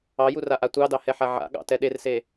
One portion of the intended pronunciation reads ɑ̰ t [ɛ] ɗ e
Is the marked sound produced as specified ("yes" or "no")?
yes